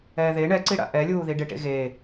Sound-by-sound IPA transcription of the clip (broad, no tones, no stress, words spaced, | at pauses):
ɛːðe ɳɛǀiɽa̰ ʔɛlʲuːði ɖeʈḛɣeː